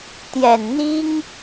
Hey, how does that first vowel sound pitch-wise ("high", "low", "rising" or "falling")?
low